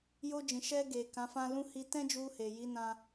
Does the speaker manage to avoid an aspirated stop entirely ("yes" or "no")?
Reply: yes